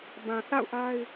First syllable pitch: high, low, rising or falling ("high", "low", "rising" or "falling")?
low